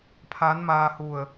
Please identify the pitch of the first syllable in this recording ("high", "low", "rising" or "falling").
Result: rising